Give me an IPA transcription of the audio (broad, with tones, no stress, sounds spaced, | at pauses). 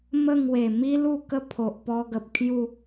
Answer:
m ə˥˧ ŋ w e˨˩ m i˦ l u˥˧ k ə˦ pʰ o˨ ʔ p ɔ˧ ɡ ə˨ p̚ kʰ j u˥˧